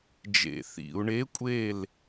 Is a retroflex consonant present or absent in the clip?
present